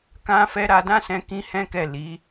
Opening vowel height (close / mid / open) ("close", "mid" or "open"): open